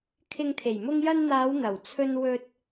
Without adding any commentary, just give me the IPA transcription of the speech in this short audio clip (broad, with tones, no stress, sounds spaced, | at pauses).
kʰ ɪ˧ ŋ t̪ʰ e˨˩ j m ʊ˧ ŋ j ɐ˧ n n̪ aː˨˧ w n̪ ɐ˨˩ w t͡sʰ ɵ˧ n w ɵ˧ t̚